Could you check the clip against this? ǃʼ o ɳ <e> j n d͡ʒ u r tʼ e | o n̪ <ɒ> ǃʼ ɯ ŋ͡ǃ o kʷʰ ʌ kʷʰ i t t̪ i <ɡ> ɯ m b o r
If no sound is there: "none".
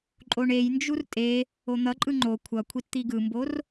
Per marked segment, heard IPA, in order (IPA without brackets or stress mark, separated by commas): e, ʌ, ɡ